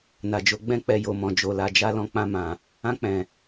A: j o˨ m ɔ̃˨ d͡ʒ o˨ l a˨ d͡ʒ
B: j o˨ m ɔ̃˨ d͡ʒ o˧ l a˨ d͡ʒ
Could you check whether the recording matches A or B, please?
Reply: A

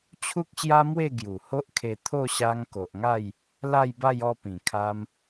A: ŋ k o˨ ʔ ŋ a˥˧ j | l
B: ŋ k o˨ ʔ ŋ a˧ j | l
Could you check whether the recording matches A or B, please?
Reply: A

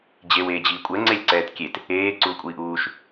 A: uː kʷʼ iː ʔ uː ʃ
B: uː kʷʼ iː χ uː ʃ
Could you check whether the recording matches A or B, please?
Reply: A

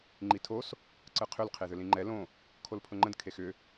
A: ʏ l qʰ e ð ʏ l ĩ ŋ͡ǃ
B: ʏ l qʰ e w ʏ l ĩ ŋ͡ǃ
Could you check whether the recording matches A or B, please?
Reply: A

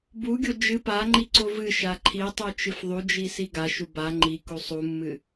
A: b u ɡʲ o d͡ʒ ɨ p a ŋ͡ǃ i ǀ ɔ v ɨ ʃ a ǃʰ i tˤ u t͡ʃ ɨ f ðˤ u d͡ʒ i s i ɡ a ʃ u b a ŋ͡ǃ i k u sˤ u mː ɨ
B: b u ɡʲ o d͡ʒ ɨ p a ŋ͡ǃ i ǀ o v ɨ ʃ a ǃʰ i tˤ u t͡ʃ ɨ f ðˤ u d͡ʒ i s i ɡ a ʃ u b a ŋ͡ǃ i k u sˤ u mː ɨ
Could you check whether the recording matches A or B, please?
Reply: B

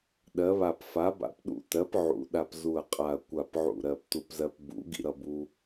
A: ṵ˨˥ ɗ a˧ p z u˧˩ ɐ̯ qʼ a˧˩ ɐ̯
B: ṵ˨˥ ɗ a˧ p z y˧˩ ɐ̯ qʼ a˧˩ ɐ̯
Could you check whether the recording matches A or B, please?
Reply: A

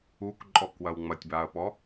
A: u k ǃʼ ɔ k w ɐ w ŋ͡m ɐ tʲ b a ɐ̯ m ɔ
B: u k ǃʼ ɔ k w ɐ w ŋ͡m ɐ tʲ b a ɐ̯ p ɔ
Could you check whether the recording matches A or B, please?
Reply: B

